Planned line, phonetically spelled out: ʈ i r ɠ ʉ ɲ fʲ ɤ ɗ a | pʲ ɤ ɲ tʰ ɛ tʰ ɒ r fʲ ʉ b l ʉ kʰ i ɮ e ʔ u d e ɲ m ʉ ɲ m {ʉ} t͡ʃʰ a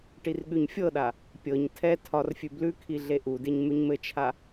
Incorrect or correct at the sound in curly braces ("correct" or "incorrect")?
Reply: incorrect